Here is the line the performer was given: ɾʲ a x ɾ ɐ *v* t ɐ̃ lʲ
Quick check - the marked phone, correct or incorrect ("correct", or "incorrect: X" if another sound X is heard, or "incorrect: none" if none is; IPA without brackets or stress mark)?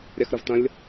correct